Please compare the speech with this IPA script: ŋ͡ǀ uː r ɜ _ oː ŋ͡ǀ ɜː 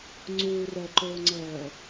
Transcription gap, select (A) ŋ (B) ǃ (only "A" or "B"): B